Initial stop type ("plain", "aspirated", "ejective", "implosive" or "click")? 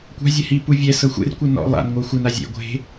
plain